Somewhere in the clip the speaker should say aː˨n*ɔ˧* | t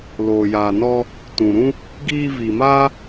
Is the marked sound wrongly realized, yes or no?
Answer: no